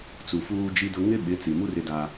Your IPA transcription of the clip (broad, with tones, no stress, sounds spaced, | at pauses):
t͡s u˨ f uː˦ d͡ʒ i˦ d ʊ˦ ŋ ɪ˦ ɓ ɪ˨˦ t͡s i˨ m u˦ r ɪ˦ d a˦